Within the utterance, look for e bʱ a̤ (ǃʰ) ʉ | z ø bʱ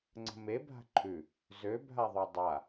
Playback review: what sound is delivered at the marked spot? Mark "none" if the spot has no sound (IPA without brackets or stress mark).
ǃʰ